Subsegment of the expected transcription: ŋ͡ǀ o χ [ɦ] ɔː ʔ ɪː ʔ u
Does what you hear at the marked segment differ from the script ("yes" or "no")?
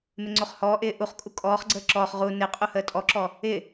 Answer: yes